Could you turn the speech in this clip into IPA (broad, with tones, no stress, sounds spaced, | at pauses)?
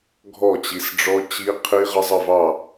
ɡʱ ɔ˥˨ t͡ɕ i˨˥ s ɖ͡ʐ ɔ˦˥ t͡ɕ i˦˥ qʰ i˦˥ ʁ ə˦˥ zˤ ə˥˨ v ɑ˥˨